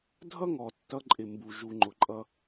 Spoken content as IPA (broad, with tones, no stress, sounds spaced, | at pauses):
dʱ ʌ˦ ŋ ɔ˨ tː ʌ˧ ǃʼ ɪ˨ m b u˨ ʒ u˨ ŋ͡ǃ ʊ˨ ǃʼ ʌ˧